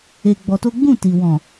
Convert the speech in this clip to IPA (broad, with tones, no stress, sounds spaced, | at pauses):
e˧ ɡ͡b ɔ˧ t o˦ ɡ͡b ũ˦˨ t i˨ w ɔ̃˨